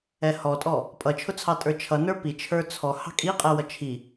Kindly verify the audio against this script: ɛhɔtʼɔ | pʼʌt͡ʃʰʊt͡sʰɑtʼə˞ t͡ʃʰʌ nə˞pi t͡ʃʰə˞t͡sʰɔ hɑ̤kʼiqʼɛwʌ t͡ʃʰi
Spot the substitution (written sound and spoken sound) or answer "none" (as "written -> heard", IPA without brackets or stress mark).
none